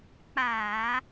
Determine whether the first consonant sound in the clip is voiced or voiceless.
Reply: voiceless